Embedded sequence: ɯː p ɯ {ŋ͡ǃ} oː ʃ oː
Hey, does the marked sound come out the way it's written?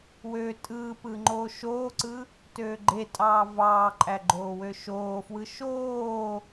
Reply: yes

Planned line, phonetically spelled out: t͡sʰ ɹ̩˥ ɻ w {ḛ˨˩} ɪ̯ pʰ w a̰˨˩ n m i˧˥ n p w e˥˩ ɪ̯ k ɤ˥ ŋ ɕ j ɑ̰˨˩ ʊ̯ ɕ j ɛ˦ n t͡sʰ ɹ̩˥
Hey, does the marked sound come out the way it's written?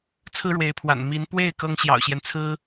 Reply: no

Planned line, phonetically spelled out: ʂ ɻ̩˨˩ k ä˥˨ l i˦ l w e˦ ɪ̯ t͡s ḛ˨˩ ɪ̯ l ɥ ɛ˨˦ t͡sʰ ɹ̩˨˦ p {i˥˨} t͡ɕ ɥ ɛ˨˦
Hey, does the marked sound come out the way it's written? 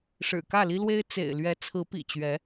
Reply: no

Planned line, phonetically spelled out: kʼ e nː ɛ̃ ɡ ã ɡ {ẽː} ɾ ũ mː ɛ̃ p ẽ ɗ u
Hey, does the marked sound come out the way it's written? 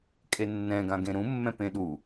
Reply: no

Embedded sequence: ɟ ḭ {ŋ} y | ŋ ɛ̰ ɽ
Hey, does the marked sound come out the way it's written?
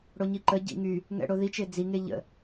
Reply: yes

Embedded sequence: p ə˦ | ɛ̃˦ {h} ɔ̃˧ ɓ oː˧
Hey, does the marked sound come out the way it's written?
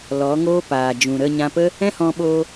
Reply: yes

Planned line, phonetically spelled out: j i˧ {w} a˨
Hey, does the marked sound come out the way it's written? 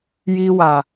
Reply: yes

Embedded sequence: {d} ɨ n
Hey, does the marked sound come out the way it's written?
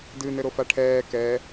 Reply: yes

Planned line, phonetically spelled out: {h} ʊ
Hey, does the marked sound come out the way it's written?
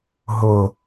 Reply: no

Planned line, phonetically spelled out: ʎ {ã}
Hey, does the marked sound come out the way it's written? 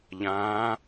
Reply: yes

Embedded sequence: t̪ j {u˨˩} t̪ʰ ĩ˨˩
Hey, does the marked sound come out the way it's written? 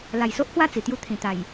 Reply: no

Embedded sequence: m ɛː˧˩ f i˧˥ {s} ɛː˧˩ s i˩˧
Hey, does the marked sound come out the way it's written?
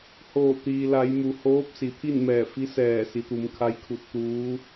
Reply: yes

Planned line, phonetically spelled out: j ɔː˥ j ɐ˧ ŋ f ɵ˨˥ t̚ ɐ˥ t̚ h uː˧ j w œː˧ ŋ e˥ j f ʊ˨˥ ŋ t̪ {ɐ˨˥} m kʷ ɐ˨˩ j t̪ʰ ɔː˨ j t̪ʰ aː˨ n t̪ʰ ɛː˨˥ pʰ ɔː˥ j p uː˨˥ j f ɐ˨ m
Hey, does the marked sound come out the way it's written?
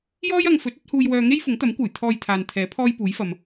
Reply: yes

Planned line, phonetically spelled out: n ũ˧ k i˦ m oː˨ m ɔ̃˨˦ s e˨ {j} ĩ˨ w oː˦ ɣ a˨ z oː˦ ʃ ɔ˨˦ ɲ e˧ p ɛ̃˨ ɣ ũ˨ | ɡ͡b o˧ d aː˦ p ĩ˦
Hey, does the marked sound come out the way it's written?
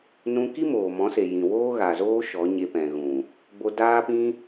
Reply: yes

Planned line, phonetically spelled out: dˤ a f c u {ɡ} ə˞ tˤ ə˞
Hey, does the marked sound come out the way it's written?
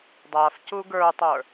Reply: yes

